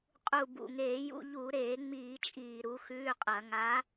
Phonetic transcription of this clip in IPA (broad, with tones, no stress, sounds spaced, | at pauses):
qʼ u˨˩ b ṵ˨˩ ŋ eː˧˩˧ j ṵ˧˥˧ ʎ u˧˩˧ ɾ eː˧˩˧ ŋ͡m iː˧˩˧ t͡ʃʼ iː˨˩ ɾ u˨˦ x ʉː˧˥˧ qʼ ɐ˧˩˧ ŋ a˨˦